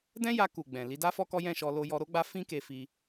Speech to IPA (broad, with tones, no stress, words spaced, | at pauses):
dɛ̃˦ja˧ ku˨ ɡ͡bɛ̃˨ li˨˦da˦fɔ˦kɔ˦ jɛ̃˦˨ʃɔ˧ lo˧jɔ˧ɾo˦ɡ͡ba˦ fĩ˦ke˧ fi˧